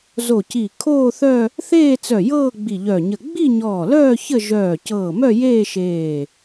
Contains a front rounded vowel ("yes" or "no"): yes